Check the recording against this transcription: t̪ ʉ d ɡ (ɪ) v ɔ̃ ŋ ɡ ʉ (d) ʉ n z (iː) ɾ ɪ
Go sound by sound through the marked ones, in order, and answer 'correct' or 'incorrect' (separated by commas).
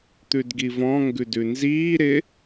incorrect, correct, correct